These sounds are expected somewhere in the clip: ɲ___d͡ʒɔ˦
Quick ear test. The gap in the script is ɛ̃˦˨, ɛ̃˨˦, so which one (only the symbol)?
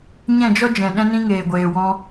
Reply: ɛ̃˦˨